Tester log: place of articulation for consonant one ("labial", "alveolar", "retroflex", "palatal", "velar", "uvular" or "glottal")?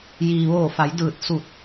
palatal